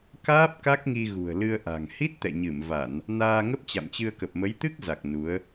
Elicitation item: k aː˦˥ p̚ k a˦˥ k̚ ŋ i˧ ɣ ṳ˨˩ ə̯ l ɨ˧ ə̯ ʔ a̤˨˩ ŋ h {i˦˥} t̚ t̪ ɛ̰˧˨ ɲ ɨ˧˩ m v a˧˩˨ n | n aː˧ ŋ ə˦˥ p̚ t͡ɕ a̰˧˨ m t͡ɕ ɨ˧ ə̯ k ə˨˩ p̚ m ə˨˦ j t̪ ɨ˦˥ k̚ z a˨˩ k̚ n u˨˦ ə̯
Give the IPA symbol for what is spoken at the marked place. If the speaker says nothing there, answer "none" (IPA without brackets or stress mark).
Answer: i˦˥